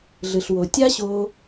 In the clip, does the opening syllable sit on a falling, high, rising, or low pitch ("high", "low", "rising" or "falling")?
low